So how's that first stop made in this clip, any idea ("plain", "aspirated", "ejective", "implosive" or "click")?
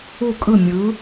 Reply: ejective